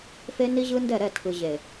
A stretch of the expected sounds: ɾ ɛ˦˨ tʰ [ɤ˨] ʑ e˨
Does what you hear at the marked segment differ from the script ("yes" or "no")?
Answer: yes